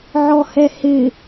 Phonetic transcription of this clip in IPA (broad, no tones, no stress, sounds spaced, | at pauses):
ʕ ɔ h ɛ h ɪ